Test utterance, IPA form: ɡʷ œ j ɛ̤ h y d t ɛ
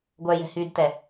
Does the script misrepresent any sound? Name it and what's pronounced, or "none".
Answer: none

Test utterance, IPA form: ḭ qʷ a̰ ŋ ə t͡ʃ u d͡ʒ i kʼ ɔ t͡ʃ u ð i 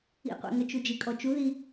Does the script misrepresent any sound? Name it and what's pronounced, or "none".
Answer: a̰ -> æ̰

